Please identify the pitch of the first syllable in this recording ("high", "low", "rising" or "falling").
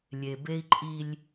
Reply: low